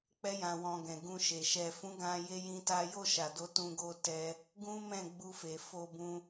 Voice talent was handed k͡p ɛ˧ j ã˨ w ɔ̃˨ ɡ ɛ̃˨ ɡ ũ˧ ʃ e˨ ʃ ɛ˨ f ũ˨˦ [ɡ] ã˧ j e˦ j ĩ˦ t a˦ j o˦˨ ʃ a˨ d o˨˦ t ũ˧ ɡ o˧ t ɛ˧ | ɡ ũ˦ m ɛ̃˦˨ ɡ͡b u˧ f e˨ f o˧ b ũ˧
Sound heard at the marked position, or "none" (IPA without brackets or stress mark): ɡ